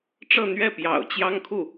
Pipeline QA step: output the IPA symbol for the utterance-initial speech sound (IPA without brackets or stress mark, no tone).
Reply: ʈ͡ʂ